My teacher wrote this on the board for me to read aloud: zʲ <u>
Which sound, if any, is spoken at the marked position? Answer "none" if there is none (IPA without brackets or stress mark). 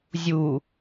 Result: u